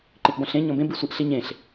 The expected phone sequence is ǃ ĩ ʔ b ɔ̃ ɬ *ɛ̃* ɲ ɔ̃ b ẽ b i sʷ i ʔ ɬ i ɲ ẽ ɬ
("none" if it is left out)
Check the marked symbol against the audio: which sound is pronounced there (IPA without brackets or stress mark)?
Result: ẽ